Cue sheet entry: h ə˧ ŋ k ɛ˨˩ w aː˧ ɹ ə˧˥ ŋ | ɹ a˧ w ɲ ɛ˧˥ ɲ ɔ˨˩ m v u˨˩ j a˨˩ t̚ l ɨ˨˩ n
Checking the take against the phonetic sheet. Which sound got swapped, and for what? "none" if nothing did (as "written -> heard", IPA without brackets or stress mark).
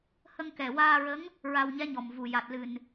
none